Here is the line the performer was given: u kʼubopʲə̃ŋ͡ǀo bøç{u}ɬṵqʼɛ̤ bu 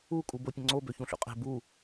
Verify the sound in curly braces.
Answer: incorrect: ũ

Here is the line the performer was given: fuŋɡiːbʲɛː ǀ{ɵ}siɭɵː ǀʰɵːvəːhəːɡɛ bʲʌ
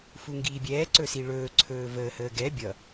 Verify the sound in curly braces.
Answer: correct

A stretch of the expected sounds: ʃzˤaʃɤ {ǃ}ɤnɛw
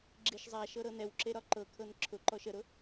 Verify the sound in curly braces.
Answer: incorrect: ɾ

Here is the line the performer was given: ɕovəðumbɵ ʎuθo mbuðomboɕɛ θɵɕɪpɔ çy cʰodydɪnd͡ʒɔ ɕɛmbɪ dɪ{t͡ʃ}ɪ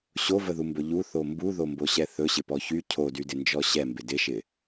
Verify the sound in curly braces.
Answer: incorrect: ʃ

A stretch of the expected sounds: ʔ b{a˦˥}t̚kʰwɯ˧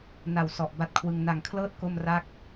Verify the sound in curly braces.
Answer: correct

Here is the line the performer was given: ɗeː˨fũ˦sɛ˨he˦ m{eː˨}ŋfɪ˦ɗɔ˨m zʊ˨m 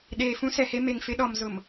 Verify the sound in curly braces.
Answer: incorrect: e˨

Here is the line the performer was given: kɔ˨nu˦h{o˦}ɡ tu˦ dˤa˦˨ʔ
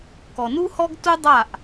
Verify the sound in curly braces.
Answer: incorrect: ɔ˦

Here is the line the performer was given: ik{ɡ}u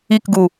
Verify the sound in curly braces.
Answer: correct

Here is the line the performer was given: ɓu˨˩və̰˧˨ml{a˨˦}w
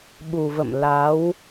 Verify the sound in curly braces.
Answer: correct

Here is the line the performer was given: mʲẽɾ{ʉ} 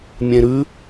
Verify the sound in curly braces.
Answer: correct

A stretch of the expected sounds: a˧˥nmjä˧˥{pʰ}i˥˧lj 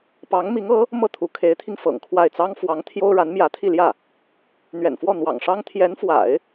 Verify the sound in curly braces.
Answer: incorrect: t̪ʰ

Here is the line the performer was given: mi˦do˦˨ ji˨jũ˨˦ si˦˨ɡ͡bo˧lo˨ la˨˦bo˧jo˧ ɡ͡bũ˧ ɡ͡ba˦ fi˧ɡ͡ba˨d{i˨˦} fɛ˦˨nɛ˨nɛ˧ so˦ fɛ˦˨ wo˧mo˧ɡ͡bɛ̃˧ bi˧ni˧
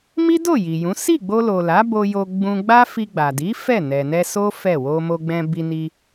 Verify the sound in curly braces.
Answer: correct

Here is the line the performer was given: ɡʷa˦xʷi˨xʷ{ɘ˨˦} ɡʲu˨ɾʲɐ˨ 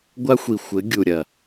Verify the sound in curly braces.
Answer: correct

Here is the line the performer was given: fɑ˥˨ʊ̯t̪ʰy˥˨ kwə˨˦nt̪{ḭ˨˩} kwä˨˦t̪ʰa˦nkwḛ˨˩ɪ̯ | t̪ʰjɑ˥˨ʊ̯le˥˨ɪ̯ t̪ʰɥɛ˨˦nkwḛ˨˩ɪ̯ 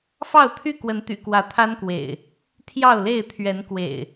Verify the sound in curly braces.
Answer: incorrect: y̰˨˩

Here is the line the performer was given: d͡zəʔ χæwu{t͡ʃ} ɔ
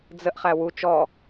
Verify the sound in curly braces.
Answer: correct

